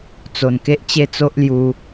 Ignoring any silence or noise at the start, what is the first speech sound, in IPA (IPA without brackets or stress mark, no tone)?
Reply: t͡s